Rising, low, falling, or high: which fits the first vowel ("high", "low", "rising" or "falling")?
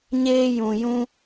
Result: high